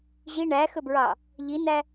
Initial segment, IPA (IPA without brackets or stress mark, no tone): ʑ